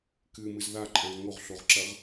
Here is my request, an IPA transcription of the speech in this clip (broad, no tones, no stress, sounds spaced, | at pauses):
k ɨ m ɨ z ð a ǃʼ ã ʁ ŋ o ʁ ɬ o ʁ ǁ ɐ ʁ